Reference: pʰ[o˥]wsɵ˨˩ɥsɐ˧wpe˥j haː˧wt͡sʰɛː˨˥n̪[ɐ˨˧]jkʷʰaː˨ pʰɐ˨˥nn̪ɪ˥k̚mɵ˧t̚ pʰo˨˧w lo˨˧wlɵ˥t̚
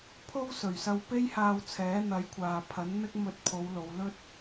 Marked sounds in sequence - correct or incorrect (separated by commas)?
correct, correct